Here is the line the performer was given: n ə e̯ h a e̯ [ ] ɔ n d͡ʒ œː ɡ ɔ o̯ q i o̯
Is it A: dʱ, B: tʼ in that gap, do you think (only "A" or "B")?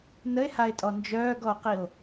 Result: B